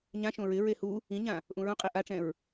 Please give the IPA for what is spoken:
ɲ ã ʃ õ ɹ ɪ ɹ e h u | ĩ ɲ ã | ʔ ũ ɹ ũ qʼ i ʔ a ʈ͡ʂ ɛ̃ ɹ

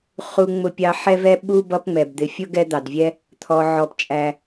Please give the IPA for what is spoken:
χ u˦ ŋ͡m ʊ˦ pʲ ɑ˦ ħ ɛ˥ v ɛ˥ ɓ u˥ b ʌ˦ p ŋ͡m ɛ˩ b d̪ ɪ˨ fʲ ʊ˥ ɡ ɛ˦ d̪ ɑ˩ d vʲ ɛ˦ | t̪ʰ ɔ˨ ʕ ɔ˨ p t͡ʃʼ æ˨

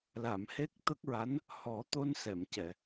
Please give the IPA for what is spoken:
l a˨˩˨ m h e˦˥ k̚ t̪ ə˦˥ k̚ ɹ a˧˥ n | h ɔ˨˩˦ t̪ o˧ n s ɛ˨˩˨ m c ɛ˨˩˨

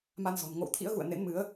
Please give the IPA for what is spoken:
m a˧ n z ɔ̤˨˩ n ŋ o̰˧˨ w t̪ʰ ḭ˧˥ ə̯ ɣ ṵ˧˨ ə̯ n ḛ˧˥ n m ɨ˨˦ ə̯

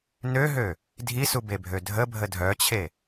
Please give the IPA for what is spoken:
n ø ɦ ø | dʱ i s u b e bʱ ø dʱ ə bʱ ə dʱ œ t͡ɕʰ e

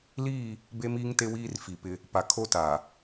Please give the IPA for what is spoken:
l iː˦˨ | b e˦ m iː˦ ŋ t e˦ w iː˦ r f i˨ p ɪ˦ | p a˨ kʰ o˦ t a˨

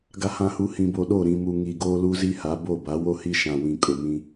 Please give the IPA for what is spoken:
ɡ a˨ h ã˨ h u˨ h ĩ˨ b o˨ ɗ o˦˨ ɾ ĩ˨ m u˨ ŋ i˨ ɡ oː˦ l u˦ z i˦ h a˨˦ b o˦˨ b a˨˦ w o˦ h i˦ ʃ ã˨ w ĩ˨ kʼ ʊ˨ m ĩ˦

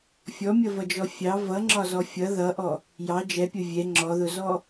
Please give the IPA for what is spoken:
fʲ ɔ mʲ ʌ v ʌ d͡ʒ ɔ fʲ ɑ v ʌ ŋ͡ǁ ɒ z ɔ fʲ ʌ ð ʌ ʔ ɔ | j ɑ d͡ʒ ɛ pʲ ʊ vʲ ɛ ŋ͡ǁ ɔ ð ʊ z ɔ

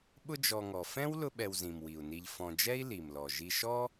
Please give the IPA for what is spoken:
ɓ ʊ˦ d͡ʒ ɔ˨ ŋ ɔ˩ f ɛ̃˥ w l ʊ˦ ɓ ɛ˨ w z ĩ˩ m w i˩ u̯ n i˨ ʎ f ɔ̃˨ d͡ʒ ɛ˥ i̯ l i˩ m l ɔ˩ ʒ i˨ ʃ ɔ˥

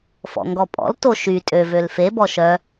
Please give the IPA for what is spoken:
f ɔ̰ ŋ ɡ ɔ pʼ ɔ̰ l t o ʃ y tʼ ø v ø l f e b ɔ ʃ œ

